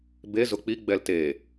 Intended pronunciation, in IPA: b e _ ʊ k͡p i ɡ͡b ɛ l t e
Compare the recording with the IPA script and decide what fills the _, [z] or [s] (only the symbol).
z